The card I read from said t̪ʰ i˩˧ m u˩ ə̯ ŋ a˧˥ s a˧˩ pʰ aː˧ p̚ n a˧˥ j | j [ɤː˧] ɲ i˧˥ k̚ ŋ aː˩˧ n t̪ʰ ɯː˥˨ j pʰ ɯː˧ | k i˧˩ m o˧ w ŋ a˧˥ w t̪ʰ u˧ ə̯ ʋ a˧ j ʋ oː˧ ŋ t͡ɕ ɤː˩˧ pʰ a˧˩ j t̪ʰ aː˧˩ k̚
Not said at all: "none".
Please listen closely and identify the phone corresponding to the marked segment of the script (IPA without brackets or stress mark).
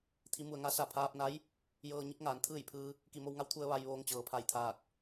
ɤː˧